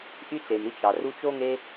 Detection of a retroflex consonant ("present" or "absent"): absent